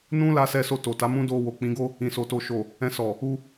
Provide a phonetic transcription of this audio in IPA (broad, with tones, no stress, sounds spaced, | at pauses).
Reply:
n ũ˦ l a˧ s ɛ˧ s o˧ t o˨ t a˨˦ m ũ˦ d o˧ w o˨ k͡p ĩ˨˦ ɡ o˦ | ĩ˨ s o˨ t o˨ ʃ o˨ | ɛ̃˧ s ɔ˨ | u˧